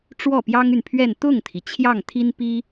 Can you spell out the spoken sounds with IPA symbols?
ʈ͡ʂwɔ˥˩pjɑ˥ŋy˨npʰɥɛ˥˧n t̪ʊ˥˩ŋt̪ʰi˩ t͡ɕʰjɑ˥˩ŋt̪ʰi˥npi˥

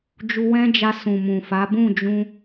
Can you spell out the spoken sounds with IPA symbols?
d͡ʒu˧wɛ̃˦d͡ʒa˧ sũ˨mũ˨fa˨˦ bũ˦˨d͡ʒũ˧

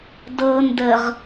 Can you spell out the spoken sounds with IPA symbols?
dɤ ndəʁ

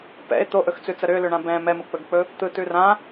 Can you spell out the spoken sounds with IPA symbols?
pɛ̰e̯ t̪oʔɵxt͡sʉt͡sə ɾʏlʏɳã bɛ̃ mɛmɯk͡pɵɡk͡pɵ | t̪ɯtʉ rã

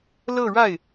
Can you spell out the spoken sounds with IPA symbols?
lɤ˥˧ɻa˥˩ɪ̯

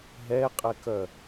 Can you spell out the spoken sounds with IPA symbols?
ɦɛqʼɛkœ

